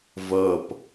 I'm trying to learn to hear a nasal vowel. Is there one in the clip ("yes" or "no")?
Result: no